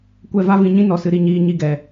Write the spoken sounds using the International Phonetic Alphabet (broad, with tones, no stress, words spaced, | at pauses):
kʷɛ˦˨va˦vĩ˧ ɲĩ˦ nɔ˨sɨ˧ɾi˧ɲiː˧ ɲi˦˨ɡɛ˨